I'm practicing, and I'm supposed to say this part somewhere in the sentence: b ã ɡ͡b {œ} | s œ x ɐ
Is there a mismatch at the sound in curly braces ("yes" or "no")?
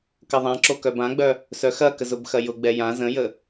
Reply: no